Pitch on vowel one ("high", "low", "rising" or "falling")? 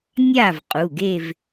falling